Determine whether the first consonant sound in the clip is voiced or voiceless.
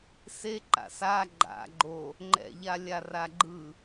voiceless